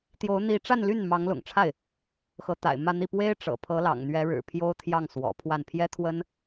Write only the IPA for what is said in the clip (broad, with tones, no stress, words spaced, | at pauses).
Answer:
t̪jo˧˥ʊ̯n̪i˧˥ʈ͡ʂa˥˧nly˥˩n mɑ˧˥ŋlʊ̰˨˩ŋʈ͡ʂʰa˥˩ɪ̯ | xɤ˧˥t̪a̰˨˩ɪ̯mä˥˧n̪i˥˩ pwe˥ɪ̯ʈ͡ʂɤ̰˨˩pʰɤ˧˥ lɑ̰˨˩ŋn̪ɥɛ˧˥ɻɻ̩˨˩ pʰjo˥ʊ̯t̪ʰjɑ˥˩ŋ swɔ̰˨˩pʰwa˥˩n pʰjɛ˥t̪ʰwə˥n